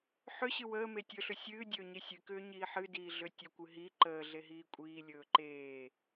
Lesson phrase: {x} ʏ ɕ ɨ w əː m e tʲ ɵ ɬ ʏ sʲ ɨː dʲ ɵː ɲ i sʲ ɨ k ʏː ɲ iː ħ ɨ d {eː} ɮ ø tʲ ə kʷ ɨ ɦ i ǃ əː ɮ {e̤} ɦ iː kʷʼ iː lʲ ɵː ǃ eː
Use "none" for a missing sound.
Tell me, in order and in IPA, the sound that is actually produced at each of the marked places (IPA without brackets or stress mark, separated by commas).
ħ, iː, e